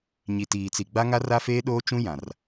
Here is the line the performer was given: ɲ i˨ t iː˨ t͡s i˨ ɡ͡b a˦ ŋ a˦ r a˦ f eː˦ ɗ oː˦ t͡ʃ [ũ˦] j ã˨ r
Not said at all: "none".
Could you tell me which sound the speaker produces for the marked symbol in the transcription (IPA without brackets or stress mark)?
ũ˦